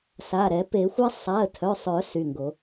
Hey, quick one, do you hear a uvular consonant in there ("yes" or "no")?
no